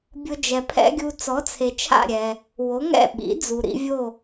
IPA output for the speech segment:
bʲʊ˧ d͡ʒɛ˩pʰɛ̰˥ɡʲu˧ t͡sɔ˩˥t͡sʰe˩t͡ʃʰa̰˥˩ ɾʲɛ˩ | wo˩˥ŋɛ̰˥˩ ɓḭ˩˥d͡zu˩ ɾḭ˧vʲo˥˩

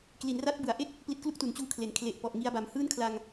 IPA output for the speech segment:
kli˩˦nra˦˥t̚bɯ˩˦a̯ʔe˥˩k̚ | pli˦˥t̚klu˥˩k̚tu˩˦nt͡ɕuː˦˥ kʰle˩˦nkʰle˨˩ʔpɔ˨˩ʔ ŋi˧a̯ba˨˩mhɯː˥˩nkʰla˧ŋ

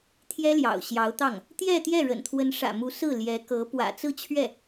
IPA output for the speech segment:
t̪ʰjɛ˥ljɑ̰˨˩ʊ̯ɕjɑ˧˥ʊ̯t̪ɑ˥˩ŋ | t̪jɛ˥˧t̪jɛ˥˩ɻə̰˨˩n t̪ʰwə˧˥nʂä̰˨˩mu˧˥ sɹ̩˥˩ljɛ˧˥kɤ˧˥ pwä̰˨˩t͡sɹ̩˥˧t͡ɕʰɥɛ˥˩

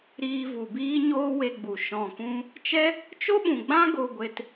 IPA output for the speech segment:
ɾiː˧vu˨ biː˦ɲoː˦ we˧ɡ͡bu˨ ʃɔ̃˨kũ˧ | t͡ʃɛ˦ | t͡ʃo˦ɓũ˨ɡ͡bã˦ ɡo˧ɡʷe˧t

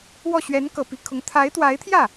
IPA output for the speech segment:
wɔ˥˩ ɕɥɛ˧˥nkɤ˨˩ pi˧˥kʰʊ˧˥ŋ t̪ʰa˧˥ɪ̯t̪wa˧˥ɪ̯t̪ʰjä˥˩

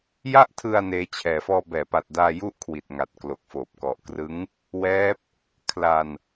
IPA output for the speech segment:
ja˥˩ʔtʰɯ˧a̯ neː˦˥t͡ɕʰɛː˧ fɔː˧bɛː˩˦pa˨˩t̚daː˧ ju˦˥ʔkʰwi˨˩t̚ ŋa˨˩t̚klo˨˩k̚foː˨˩p̚ kɔ˨˩ʔkrɯ˦˥ŋ | wɛː˦˥p̚ | kʰla˧n

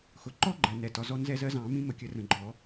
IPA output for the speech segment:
xʊ˩ǃɔ˦ɡ͡ǃɜ˩ nɛ˩ tɒ˩zɔ˦nzɛ˦zɜ˦ zɑ̃˨˩˦mĩ˦ mə˩kʲə˨˩˦ rə̃˩ɡ͡ǃɔ˨˩˦

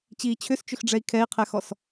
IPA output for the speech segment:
t͡ɕiːt͡ɕʰʏst͡ʃʏxɖ͡ʐɛi̯ kʰɛi̯qʰɛxɔs

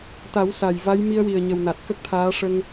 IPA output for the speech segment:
t̪a˨˩˦w sa˨˩jva˧˥j mi˧ə̯wi˨˩ə̯ɲə˨˩w na˨˩t̚kə˦˥k̚t̪ʰaː˧˥ ʂə˧ŋ

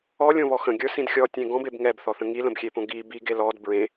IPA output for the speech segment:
ɔlʲõβɔ xə̃ɡʲə˞sĩd xʲɔtʲẽ ɡɔ̃beb ŋɛbθɔθə̃ ŋilə̃bxʲepõ ɡi biɡe lɔd bɹẽ

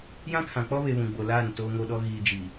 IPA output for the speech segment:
jã˦kʰã˨k͡pɔ˦βe˨ βũ˨ɡ͡bo˨ laː˦˨n toː˨ŋo˨ɗɔ˨ ɣiː˨d͡ʒiː˨

